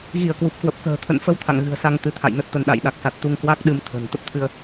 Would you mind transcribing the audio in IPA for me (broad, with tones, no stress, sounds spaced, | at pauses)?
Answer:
ɣ i˧˩ ə̯ k w u˨˩ p̚ k w ə˨˩ p̚ k ə̤ː˨˩ t̪ʰ ə̰˧˨ n f ə˧ w t̪ʰ a̰˧˨ ŋ ɣ ɨ̤˨˩ ə̯ s a˧ ŋ t̪ ɨ˨˦ t̪ʰ a̰˧˨ j n ə˦˥ t̚ t̪ ə˧ n ɗ a̰˧˨ j ɗ a˨˩ k̚ s a˨˩ t̚ t̪ u˧ ŋ k w a˦˥ k̚ ɗ ɨ˧ m t̪ʰ ə̤˨˩ n t̪ ə˦˥ p̚ t̪ʰ ɨ˧ ə̯